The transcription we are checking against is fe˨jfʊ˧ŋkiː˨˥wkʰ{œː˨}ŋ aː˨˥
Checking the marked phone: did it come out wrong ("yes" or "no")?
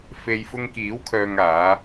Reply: no